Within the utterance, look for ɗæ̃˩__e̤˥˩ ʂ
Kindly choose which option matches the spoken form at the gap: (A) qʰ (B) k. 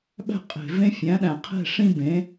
A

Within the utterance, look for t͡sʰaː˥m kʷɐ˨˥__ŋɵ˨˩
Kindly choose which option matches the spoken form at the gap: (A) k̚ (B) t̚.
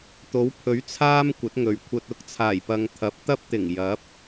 B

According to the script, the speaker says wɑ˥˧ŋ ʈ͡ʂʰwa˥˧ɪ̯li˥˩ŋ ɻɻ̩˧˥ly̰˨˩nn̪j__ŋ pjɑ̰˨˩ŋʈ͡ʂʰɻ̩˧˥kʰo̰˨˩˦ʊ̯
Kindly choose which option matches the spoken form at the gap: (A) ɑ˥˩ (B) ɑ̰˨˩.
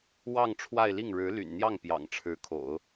A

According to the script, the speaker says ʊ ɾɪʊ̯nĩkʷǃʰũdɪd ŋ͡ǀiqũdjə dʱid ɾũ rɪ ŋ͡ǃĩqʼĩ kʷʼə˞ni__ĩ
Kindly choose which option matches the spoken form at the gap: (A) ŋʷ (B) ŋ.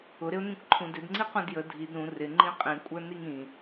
B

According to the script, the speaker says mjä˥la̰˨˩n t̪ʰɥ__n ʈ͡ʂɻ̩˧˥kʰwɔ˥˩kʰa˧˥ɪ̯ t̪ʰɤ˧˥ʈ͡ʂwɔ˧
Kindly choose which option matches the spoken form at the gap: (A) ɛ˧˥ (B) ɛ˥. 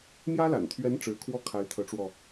A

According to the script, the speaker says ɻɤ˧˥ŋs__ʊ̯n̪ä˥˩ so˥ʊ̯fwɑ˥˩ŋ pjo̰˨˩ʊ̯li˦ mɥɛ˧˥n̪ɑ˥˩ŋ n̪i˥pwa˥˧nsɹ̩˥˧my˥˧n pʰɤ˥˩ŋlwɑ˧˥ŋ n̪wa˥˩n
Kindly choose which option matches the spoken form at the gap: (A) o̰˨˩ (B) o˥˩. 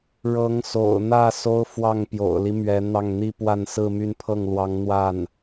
A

